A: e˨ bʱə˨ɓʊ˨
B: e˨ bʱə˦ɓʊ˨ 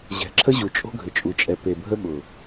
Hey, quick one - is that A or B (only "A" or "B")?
B